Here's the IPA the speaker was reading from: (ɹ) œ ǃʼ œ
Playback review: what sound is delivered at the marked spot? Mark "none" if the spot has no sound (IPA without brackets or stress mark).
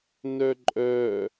n